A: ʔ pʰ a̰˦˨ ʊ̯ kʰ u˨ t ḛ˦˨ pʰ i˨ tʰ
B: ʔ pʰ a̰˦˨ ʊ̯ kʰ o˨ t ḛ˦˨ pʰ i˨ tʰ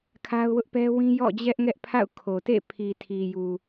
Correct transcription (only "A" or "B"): B